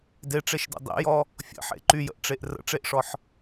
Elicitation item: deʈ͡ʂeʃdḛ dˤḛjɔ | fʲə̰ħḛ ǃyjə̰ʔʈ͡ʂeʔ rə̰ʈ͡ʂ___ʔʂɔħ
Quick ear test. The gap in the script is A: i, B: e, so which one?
B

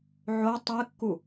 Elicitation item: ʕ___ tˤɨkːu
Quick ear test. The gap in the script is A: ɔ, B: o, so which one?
B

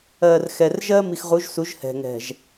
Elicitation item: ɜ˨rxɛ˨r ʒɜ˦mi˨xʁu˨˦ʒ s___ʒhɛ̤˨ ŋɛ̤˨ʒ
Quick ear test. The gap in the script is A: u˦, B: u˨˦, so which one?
B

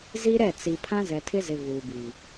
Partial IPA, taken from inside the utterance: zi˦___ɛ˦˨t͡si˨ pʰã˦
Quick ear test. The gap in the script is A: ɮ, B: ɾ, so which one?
B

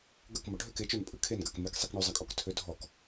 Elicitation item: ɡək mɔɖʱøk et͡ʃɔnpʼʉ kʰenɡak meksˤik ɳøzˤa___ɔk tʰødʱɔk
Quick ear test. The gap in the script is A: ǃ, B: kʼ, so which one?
B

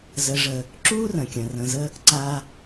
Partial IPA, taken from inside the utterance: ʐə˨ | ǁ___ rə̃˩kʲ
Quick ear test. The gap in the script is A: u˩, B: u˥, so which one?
B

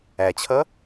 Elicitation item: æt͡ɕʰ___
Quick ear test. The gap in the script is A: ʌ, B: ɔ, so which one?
A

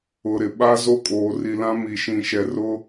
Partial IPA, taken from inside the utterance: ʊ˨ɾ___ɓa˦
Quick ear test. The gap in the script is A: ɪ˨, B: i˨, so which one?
A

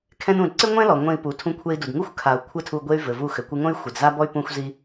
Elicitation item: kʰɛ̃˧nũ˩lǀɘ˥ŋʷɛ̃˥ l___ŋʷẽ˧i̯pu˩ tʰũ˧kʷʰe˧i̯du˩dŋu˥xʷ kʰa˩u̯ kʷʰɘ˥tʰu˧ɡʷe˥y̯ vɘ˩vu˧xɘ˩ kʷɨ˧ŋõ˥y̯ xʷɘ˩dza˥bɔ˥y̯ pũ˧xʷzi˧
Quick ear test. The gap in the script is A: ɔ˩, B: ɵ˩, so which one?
A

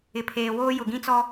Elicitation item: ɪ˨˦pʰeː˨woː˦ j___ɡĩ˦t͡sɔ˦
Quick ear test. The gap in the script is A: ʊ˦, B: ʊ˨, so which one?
B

